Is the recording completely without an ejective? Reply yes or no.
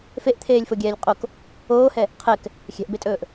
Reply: no